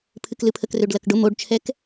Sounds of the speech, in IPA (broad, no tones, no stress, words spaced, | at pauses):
pʰɨklɨpʰək røɖlɐkɖʊ moɖt͡ʃʰɛk